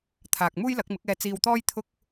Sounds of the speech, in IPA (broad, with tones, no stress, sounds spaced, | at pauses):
t̪ʰ aː˨ k̚ m uː˥ j l ɐ˨˥ k̚ m ɪ˨˥ k̚ ɛː˧ t͡s iː˧ w t̪ ɔː˥ j t̪ʰ ʊ˥ k̚